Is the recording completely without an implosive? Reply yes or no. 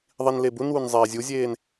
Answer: yes